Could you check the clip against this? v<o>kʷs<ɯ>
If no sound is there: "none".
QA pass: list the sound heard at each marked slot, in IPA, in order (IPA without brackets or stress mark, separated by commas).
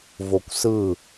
o, ɯ